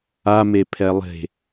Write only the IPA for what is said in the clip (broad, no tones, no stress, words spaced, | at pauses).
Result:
a mepʰɛlˠe̤